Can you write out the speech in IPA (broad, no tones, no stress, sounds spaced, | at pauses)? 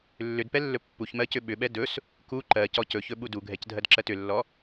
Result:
lː ʏ d p ɛ lː ɵ pː u ç m ɜ c ʏ ɓ ʏ ɓ ɛ d ɵ s | k u ǃ ɜ c ɔ c ɵ ç ɵ ɓ u d u ɡʱ ɛ c dʱ ɜ d ǁ ɜ t ʏ lː ɔ